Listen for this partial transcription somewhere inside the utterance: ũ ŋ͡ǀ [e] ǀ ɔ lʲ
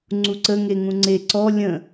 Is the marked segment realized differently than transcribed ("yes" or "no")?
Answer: no